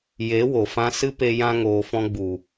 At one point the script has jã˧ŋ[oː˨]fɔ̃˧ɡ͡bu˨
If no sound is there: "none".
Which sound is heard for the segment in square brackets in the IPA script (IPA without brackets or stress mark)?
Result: oː˨